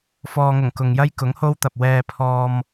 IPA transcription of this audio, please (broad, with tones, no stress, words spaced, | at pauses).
fɔː˨ŋʊ˨˩ŋ kʊ˨ŋjɐ˥j kʊ˨˥ŋho˥wt̪ɐ˨p̚ wɛː˧pʰɔː˧m